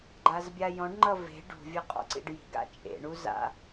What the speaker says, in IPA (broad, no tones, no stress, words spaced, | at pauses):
ɡ͡ǃazbʲajɔ̃ɖŋ͡ǃʌ ve̤ ɖṳvʲʌ qʼɔ̰ǀḭɖji̤ɡa̰ t͡ʃʼḛɳu za̰